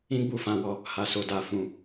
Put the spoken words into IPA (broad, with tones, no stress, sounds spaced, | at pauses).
ĩ˦ ɡ͡b u˦˨ f ã˧ w ɔ˧ | h a˧ s o˧ d a˧ f ũ˧